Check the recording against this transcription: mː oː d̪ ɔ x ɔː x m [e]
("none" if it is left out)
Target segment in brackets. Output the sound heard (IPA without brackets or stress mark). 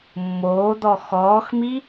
i